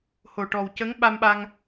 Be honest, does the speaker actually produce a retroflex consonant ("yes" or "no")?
yes